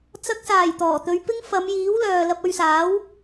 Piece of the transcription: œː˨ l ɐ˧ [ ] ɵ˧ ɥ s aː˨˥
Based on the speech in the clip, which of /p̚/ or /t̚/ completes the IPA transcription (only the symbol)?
p̚